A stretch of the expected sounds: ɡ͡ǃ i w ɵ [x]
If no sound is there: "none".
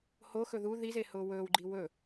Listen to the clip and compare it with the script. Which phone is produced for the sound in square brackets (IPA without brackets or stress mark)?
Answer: none